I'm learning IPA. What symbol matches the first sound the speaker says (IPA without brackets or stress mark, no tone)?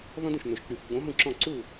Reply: ð